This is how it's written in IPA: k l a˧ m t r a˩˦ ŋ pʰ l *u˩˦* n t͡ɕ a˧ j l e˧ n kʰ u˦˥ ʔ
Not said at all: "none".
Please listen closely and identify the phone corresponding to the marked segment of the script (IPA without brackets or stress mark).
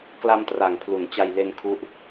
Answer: u˩˦